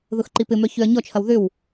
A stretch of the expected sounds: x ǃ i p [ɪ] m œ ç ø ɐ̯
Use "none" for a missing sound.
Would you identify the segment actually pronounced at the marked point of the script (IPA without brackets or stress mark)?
ɪ